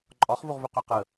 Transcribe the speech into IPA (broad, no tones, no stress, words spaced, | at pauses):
ǃʼɒχvuʁvøqø qə